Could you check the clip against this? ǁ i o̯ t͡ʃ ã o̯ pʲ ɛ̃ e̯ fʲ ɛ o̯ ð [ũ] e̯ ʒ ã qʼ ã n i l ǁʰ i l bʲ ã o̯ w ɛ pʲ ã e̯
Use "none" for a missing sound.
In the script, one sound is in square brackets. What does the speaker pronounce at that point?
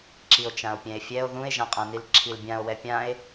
ũ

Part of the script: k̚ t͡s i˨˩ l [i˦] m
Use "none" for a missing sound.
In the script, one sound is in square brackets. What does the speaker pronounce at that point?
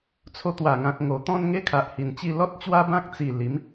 i˨˦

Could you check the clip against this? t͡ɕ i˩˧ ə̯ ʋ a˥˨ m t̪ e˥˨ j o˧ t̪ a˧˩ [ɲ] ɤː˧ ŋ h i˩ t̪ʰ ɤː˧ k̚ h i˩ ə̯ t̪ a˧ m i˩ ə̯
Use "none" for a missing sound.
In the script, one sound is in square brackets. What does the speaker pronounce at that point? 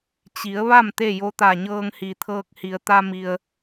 ɲ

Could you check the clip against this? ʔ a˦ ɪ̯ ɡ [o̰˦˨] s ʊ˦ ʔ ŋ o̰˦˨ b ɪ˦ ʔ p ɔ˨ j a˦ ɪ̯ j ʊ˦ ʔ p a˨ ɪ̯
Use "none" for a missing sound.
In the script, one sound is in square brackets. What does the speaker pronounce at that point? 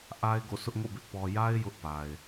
o̰˦˨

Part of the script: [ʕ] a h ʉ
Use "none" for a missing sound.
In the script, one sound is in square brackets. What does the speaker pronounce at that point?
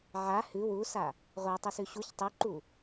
ʕ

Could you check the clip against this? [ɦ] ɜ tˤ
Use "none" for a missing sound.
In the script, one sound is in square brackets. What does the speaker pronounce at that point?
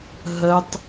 ɦ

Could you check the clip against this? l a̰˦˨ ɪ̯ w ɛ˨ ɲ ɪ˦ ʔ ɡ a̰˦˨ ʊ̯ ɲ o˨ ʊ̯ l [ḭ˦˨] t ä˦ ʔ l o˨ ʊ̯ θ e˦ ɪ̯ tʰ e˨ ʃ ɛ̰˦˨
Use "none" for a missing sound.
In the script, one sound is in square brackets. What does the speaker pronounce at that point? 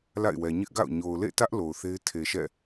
ḛ˦˨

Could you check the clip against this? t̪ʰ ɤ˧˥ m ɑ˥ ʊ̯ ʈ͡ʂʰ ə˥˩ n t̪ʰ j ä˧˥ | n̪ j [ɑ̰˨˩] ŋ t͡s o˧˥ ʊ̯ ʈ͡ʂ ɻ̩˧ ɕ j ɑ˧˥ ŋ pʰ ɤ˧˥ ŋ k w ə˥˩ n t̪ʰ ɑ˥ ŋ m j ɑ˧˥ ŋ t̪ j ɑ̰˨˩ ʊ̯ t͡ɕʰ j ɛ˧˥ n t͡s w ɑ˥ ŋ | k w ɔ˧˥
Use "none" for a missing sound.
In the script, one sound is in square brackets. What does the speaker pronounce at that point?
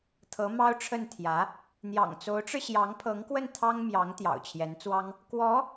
ɑ̰˨˩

